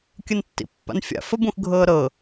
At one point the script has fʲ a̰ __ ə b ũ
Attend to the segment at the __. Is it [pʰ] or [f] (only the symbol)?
f